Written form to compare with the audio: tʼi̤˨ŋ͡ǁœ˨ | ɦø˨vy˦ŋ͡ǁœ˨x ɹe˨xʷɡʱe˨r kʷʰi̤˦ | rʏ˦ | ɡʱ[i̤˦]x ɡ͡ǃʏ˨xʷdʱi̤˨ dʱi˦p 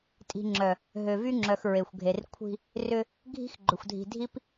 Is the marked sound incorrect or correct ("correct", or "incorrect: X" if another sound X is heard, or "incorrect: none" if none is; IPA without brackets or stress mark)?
correct